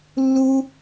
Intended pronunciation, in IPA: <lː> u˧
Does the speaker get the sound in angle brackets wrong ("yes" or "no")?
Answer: no